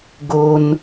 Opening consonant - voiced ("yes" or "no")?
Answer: yes